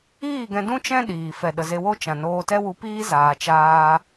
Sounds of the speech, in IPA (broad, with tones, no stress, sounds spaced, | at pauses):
iː˦˨ ɡ ɛ̃˧ d ũ˦ t͡ʃ ɛ̃˦ ɗ iː˨ f ɛ˨ ɗ ə˨ z e˧ w o˦ t͡ʃ ã˨ n oː˧ t ɛ˦ w u˧ p iː˦ z aː˨ t͡ʃ aː˧